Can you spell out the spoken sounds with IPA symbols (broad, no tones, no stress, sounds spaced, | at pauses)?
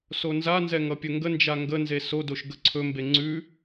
s o n z a n z ɛ ŋ ʌ pʲ ɵ ŋ ɡ ə n d͡ʒ a ŋ ɡ ə n z e s o d o ʃ ɡ ə ǀʰ ɵ m b e ŋ͡ǀ ʉ